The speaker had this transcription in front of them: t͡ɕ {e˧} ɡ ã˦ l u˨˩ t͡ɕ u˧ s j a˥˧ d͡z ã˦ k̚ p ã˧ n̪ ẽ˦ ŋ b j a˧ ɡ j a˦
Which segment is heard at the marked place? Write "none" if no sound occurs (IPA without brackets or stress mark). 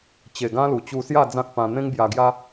e˨˩